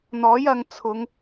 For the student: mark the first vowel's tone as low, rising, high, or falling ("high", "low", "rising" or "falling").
rising